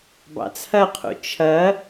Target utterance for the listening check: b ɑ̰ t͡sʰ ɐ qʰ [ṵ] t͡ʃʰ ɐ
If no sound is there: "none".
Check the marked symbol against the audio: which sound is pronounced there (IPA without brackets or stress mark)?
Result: ṵ